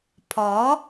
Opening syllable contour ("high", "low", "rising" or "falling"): rising